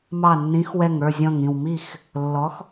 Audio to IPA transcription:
m ɑ˧˩ nː ĩ˨˥ x w ɛ˧˩ ŋ ə˞˥˨ zʲ ɔ̃˧˩ ŋ ĩ˧˩ w m i˥˨ x | lː ɔ˨˥ x

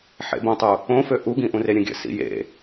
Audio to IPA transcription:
ħ ḛ b õ tˤ u | õ f ø ʔ u ɡ ĩ ʔ ũ r e ɾʲ ə̃ ɡʲ ə̰ s ḭ j ḛ

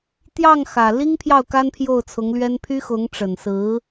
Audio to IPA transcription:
t̪ j ɑ˥˩ ŋ x ä˨˩ l i˥ ŋ pʰ j ɑ˥˩ ʊ̯ k a˥ n pʰ j o˥˩ ʊ̯ t͡sʰ ʊ˧˥ ŋ l ɥ ɛ˥ n pʰ y˥ x ʊ˧˥ ŋ ʈ͡ʂ ə˨˩ n s ɹ̩˧˥

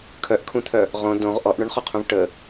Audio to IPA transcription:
kʰ œ ʔ kʰ ũ t̪ʰ œ | ʁ õ d õ ʁ ʔ ɔ ʔ ɳ œ ɳ χ ɔ qʰ ũ v ʈ ə

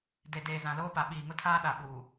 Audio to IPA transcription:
d e˨ d eː˨ z ã˨ l oː˦ p a˨ ɓ iː˨ ŋ ʊ˦ tʰ aː˦ ɗ a˨ ɓ uː˨

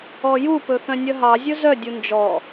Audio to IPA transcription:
ɔ j u p ɵ θ œ̃ nʲ œ ɦ ɑ zʲ ɵ z œ dʲ u n d͡ʒ ɔ

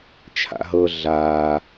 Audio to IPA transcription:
t͡ʃʰ a̰ ɦ ɤ ɮ aː

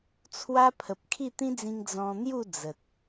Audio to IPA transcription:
t͡sʰ w a˦ pʰ ə˨ p̚ kʰ i˥˧ t̪ ĩ˦ d͡z ĩ˧ ŋ d͡z ɔ̃˧ n̪ j u˥˧ d͡z ə˨ t̚

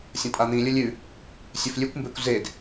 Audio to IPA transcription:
sʲ ɐ̃ tʼ a n̪ ĩ lʲ ɵ lʲ ʉ | sʲ ɵ f lʲ ʉ kʷ m b e kʷ z e d

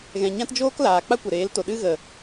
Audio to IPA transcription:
ɣ ɛ̃˨ ɲ ã˦ t d͡ʒ oː˦ k l aː˨ k͡p a˦ kʷ ə˨ ɾ eː˨˦ l t o˨ ɗ ɨ˦ ɣ ə˨

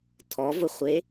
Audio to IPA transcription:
tʰ ɔ v ʊ χʷ e

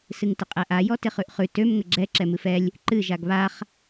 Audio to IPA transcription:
s ɨ ŋ t ɪ qʼ ɛ ʔ a j ɔ t ɪ χ ʉ ʔ χ ʉ t ø m ŋ ə ɡ͡ǁ ɛ ǁ ɛ m ɨ f ɛ lʲ | ǃ ɨ ʒ a ɡ β a χ

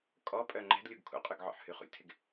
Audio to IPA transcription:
kʼ ɔ pʼ œ ŋ͡ǃ ɛ̤ d lʲ u ɡ kʰ ṵ qʼ y ɡ ʕ ɔ̰ ħ h y χ ṵ lʲ tʰ ɪ ɡ

